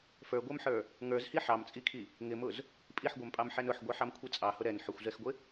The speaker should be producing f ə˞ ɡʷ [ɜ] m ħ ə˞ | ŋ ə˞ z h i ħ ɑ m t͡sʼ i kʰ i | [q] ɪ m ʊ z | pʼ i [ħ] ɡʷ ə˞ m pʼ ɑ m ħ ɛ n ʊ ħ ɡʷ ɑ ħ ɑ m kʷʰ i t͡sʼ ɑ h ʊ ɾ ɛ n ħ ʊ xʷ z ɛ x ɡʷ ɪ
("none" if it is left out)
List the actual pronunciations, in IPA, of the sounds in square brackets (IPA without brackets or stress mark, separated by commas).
ə˞, ŋ, ħ